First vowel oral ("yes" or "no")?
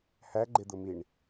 yes